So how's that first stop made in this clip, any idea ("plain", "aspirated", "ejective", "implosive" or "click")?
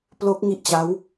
plain